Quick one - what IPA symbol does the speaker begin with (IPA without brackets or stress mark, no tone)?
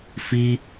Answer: f